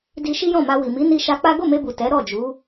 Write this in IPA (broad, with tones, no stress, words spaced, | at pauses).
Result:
di˧ʃi˦jɔ̃˦˨ma˧ wi˨mi˨˦ni˧ ʃa˧ k͡pa˦ ɡo˦˨me˧bu˨ tɛ˨˦ ɾɔ˦˨d͡ʒu˨˦